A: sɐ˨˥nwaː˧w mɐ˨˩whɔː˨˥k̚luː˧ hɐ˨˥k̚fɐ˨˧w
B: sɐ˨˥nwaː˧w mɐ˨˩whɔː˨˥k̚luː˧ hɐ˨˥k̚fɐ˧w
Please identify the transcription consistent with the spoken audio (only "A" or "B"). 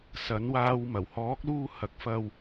B